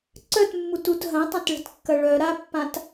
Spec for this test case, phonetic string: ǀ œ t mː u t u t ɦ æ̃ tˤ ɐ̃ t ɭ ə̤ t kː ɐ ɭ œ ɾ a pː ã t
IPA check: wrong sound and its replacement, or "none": æ̃ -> ɐ̃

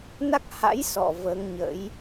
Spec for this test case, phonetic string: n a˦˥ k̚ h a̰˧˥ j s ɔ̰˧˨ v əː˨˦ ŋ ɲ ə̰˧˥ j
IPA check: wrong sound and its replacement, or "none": none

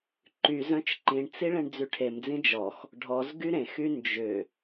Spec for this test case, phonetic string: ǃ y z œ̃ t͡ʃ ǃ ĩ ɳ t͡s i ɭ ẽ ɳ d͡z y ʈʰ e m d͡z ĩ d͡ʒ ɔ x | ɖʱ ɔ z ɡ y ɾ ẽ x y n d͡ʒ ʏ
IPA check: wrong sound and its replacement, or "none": none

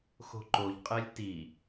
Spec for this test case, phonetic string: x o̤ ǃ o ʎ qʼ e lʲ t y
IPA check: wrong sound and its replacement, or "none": y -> i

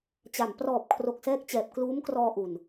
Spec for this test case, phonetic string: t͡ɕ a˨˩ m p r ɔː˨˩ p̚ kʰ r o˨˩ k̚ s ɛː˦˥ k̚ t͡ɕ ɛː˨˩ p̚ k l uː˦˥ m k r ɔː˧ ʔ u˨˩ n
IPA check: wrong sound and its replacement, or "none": none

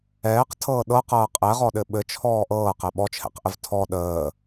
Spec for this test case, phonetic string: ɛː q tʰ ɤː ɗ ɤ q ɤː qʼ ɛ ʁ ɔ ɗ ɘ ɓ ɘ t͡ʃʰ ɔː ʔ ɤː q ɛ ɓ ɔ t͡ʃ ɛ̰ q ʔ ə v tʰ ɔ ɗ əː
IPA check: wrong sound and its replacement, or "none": t͡ʃ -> t͡ʃʰ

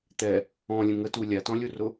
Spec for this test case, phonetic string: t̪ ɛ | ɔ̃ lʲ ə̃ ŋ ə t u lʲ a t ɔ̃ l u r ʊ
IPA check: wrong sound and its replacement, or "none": l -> lʲ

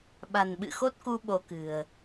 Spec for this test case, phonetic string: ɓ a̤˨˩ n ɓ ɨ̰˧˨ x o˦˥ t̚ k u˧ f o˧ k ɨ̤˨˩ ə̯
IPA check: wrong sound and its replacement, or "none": f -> ɓ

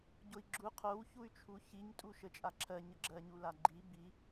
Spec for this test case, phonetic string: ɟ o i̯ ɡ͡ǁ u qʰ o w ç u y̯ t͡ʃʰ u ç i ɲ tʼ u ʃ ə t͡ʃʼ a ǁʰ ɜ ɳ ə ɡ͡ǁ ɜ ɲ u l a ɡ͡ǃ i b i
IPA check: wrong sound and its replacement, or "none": ɳ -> ɲ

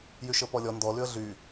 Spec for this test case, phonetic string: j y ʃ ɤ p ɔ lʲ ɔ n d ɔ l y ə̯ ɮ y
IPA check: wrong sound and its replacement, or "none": none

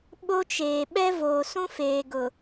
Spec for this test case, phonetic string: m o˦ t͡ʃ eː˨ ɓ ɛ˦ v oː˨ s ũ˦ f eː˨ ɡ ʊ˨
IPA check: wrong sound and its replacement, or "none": m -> ɓ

